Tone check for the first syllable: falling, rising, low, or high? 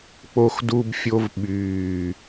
high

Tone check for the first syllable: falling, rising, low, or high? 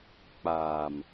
low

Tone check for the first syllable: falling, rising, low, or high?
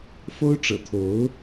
high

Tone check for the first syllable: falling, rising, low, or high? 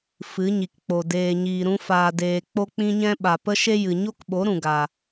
rising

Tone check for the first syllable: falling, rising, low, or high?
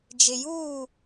low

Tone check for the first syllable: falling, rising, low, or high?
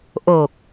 low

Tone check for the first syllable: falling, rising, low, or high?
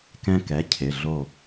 high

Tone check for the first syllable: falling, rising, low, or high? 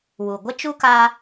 low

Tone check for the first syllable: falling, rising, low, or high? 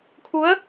rising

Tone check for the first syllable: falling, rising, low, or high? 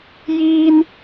low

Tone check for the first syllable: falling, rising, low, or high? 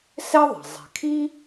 high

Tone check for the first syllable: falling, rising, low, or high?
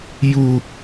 high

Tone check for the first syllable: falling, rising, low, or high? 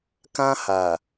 high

